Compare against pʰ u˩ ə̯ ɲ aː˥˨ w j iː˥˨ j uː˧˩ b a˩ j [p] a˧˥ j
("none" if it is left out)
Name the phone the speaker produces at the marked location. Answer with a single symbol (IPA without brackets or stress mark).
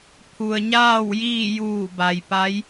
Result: p